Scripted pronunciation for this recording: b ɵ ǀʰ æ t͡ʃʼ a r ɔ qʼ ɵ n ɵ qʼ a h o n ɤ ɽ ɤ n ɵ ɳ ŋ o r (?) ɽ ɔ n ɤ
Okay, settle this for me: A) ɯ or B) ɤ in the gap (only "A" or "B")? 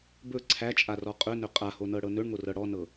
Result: B